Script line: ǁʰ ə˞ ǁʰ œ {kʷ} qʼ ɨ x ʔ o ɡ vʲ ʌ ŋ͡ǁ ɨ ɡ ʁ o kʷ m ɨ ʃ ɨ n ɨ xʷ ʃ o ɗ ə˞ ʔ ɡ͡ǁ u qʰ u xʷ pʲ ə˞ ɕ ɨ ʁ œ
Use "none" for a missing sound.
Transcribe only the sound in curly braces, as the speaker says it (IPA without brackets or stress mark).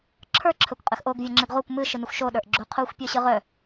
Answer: kʷ